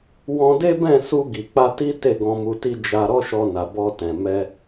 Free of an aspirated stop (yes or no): yes